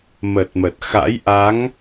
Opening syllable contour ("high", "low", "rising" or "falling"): low